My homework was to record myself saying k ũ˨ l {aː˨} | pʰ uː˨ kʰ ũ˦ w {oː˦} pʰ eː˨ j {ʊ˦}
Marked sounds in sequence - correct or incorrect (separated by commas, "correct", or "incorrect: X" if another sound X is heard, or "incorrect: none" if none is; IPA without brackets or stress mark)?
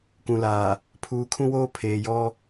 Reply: correct, correct, incorrect: ɔ˦